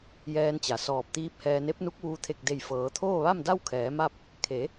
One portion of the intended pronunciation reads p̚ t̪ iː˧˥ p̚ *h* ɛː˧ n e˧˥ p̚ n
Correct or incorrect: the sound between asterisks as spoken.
correct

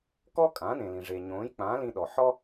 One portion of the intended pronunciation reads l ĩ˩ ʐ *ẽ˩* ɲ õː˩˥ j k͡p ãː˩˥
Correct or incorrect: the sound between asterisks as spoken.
incorrect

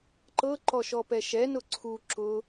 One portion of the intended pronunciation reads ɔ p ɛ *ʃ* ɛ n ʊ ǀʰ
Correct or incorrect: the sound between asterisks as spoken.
correct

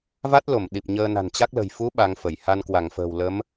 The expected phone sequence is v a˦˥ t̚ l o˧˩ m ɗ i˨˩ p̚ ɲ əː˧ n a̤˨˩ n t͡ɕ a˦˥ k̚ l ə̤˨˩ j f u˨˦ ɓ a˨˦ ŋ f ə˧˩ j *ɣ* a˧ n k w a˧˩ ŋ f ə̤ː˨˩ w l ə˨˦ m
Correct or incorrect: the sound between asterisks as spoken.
incorrect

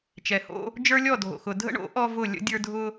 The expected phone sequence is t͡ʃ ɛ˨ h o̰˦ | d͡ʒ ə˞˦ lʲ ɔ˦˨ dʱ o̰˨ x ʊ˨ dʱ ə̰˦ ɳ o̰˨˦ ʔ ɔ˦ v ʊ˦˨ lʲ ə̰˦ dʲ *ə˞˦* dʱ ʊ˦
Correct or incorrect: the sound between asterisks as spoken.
correct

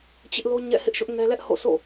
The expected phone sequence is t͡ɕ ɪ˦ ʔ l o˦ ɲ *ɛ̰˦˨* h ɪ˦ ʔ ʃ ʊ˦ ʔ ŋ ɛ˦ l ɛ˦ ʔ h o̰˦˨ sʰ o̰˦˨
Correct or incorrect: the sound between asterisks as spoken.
correct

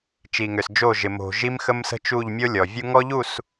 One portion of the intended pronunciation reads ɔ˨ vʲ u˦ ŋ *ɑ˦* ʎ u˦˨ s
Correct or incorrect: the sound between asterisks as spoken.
incorrect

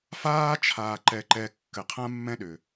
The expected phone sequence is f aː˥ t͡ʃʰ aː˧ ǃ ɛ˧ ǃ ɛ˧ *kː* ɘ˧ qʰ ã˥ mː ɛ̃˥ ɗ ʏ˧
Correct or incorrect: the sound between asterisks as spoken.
correct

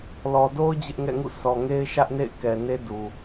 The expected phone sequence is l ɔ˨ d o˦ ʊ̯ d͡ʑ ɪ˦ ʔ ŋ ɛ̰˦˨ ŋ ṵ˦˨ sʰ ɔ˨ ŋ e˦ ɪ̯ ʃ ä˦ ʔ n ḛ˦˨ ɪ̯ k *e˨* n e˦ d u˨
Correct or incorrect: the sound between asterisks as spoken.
incorrect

